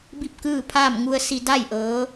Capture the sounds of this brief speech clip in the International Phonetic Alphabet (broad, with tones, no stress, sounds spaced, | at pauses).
b i˥˨ p̚ k ɯː˥˨ pʰ aː˥˨ m ŋ u˧ ə̯ s i˧ d a˥˨ j ʔ ɤː˧˥